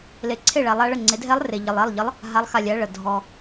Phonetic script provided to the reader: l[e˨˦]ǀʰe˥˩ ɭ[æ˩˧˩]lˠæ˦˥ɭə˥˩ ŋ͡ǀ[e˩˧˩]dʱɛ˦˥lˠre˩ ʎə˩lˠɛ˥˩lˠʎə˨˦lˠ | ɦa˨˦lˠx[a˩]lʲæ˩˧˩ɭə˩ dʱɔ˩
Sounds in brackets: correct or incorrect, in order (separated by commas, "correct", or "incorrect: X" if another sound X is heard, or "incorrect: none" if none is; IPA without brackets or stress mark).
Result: correct, incorrect: æ˨˦, incorrect: e˨˦, correct